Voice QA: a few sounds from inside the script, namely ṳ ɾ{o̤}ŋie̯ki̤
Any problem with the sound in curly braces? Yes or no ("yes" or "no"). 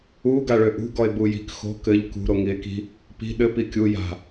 yes